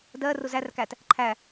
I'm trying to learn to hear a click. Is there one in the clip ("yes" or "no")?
yes